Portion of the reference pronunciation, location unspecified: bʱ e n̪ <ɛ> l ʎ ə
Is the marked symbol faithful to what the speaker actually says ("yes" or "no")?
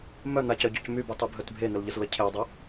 no